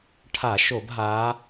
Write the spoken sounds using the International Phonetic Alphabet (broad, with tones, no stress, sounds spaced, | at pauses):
ʈʰ a˧˩˧ ʃ o˧˩˧ b ɦ a˨˦